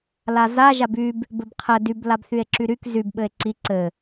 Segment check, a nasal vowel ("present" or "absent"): absent